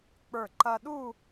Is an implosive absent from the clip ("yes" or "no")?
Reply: no